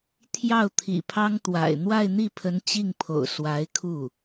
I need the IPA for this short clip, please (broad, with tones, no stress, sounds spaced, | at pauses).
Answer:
t̪ʰ j ɑ˥˩ ʊ̯ t̪ʰ ḭ˨˩ pʰ ɑ˥ ŋ t̪ w a̰˨˩ ɪ̯ n̪ w a˥˧ ɪ̯ n̪ i˥˩ pʰ ə˧˥ n t͡ɕ i˥˩ ŋ pʰ o̰˨˩ ʊ̯ s w a˧˥ ɪ̯ kʰ u˥˩